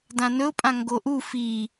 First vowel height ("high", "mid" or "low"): low